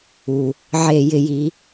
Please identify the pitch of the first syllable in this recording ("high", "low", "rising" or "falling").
low